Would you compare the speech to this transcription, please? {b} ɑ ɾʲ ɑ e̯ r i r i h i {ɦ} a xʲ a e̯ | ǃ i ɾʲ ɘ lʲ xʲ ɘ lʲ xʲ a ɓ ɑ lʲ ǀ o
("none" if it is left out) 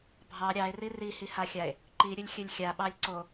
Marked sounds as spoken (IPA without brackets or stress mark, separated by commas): bʱ, h